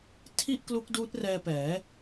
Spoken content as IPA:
tʰ i˥˩ ʔ k l u˦˥ k̚ d uː˦˥ t̚ r ɛː˧ p ɛː˩˦

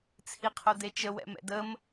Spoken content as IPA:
t͡sʰ i qʰ o d e t͡ʃ ə w ɛ̰ m ɛ̰ d ə m

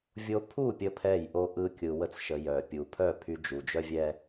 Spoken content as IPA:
vʲ o˧ pʰ u˦˨ pʲ ə˦ pʰ ɛ˦˨ j ʔ o˦ ʔ ɯ˦ kʲ ɯ˧ w ə˦ t͡s ʃ ə˧ j œ˨ pʲ u˨ pʰ œ˦˨ pʰ y˧ d͡ʒ u˨ d͡ʒ œ˦ vʲ ɛ˦

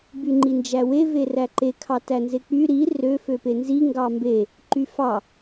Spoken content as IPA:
b y ŋ͡ǃ i n d͡ʒ æ w e v e r æ ǃ e kʰ ɑ t æ n z e k͡p y ɾ i r ø f ø p e n z i ŋ ɡ ɑ m b e | ǃ y f ɑ

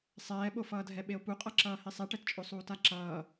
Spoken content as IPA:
sˤ ɛː ɓ o f ʌː dʱ ɛ ɓ e o̯ p u qʼ ʌ ǁ ʌː h i sˤ ɛ ʈ ɛ t t͡ʃʼ o sˤ uː t a ǁ ʌː

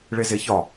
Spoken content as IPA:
ɭ e z e ç ɒ

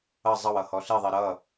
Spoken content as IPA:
ʌ zˤ ʌ w ʌ h ɔ ɬ i ðˤ i ɾ ʌ

